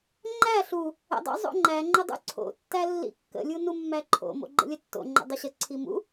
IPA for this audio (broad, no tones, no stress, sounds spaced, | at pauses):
ŋ͡ǃ æ ɬ u | ə̰ dˤ o̰ zˤ o̰ ŋ͡ǃ æ ŋ͡ǃ ə dˤ ṵ ǀʰ o̰ tː æ lː ḭ kː ə̰ lʲ u n u mː æ ǃʰ o̰ m o̰ ɡ͡ǃ ə̰ lʲ ə tː o̰ ŋ͡ǃ ə̰ dˤ ə ɕ ə ǀʰ i m ṵ